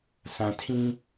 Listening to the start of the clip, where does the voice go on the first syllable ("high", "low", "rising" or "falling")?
low